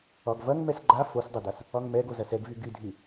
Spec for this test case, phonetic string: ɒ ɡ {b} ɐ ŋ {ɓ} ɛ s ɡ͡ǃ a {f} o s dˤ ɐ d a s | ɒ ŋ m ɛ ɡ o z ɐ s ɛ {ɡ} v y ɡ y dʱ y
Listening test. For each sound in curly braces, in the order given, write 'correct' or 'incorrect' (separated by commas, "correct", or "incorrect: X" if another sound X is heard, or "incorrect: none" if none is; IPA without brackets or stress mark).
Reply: incorrect: v, incorrect: m, correct, correct